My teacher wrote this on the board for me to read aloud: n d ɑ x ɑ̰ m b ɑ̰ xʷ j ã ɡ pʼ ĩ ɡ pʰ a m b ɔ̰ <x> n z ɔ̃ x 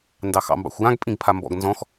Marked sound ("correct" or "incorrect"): incorrect